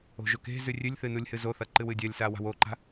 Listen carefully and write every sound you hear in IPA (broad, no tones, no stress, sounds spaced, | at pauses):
o̤ ʒ ɵ k e̤ z ʉ rʲ ʉ lʲ θ ɨ n u lʲ h ɨ z o θ ɐ ǃ ɨ w ɨ dʲ ɐ lʲ s a w a̤ w o ǃ a̤